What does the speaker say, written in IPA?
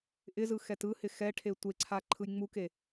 ʔɪzɯ xɛtɯhɪ xɛʈʰe tʷeǀʰa ǃʰɯjŋ͡muke

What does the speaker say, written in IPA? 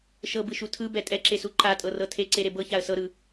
ʃɤbɯʃu tʰɯbɛ tʼɛǁesu ǃatʼɤrɤ tʰeǀeɾe bɤçaə̯ sɤɾɯ

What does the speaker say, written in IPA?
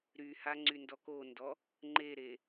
ɾyha ŋ͡ǀyndɔkondɔ | ŋ͡ǃeɾe

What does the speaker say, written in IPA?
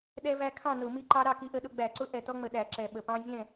ɗɛ˦væ˦ kʰɑ̃˥˨nʊ˧˩˧ mi˦ǃɑ˦ ɾɑ˥˨ki˦ʔə˦ɗʊ˦ ɡ͡bæ˧˩˧ǀʊ˦ ʔɛ˨˩tɔ˦ŋ͡mə˨˩ɗæ˧˩˧ ǁɛ˨˩ɓə˨˩pɑ̃˦ zʲɛ̃˥˨

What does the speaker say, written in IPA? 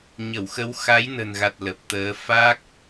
ɲə˧˩wxə˨˦w xa˨˦jnə̤˨˩nɣa˨˩t̚ lə˨˩p̚t̪əː˨˦ fa˦˥k̚

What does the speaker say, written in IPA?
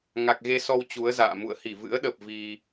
ŋa˨˩k̚ɣe˧sɔ˧w t͡ɕu˨˦ə̯za̰ː˧˨ mṵ˧˨ə̯hi˧˩vɨ̰˧˥ə̯ɗə˨˩p̚ vi˧

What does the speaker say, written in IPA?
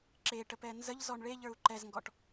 ǁeʈəp ɛnzəʎzɔɳ ɭeʎə˞u̯ ǃɛzŋɡɔʈ

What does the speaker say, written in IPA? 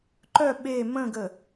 ǃœ ɓe mə̃ɡə

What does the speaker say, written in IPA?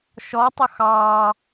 ʃɔtˤʊ xɑː

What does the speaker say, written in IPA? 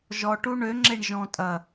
ʒɔ ʈuɳø ŋ͡ǁeɳʒɔ̃tʼɐ

